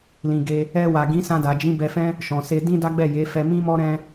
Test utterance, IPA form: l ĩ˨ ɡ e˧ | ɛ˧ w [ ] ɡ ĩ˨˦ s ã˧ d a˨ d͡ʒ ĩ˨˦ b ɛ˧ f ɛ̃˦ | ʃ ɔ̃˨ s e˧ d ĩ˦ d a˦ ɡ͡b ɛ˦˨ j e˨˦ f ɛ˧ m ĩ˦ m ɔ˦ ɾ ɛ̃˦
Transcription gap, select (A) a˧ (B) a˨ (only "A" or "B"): B